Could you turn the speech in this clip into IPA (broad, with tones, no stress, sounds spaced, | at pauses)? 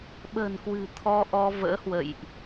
ɓ ə̤ː˨˩ n k w ɨ̤˨˩ t̪ʰ ɔ˧ ʔ ɔ˧ v ə̰ː˧˥ h w ə̰˧˨ j ʔ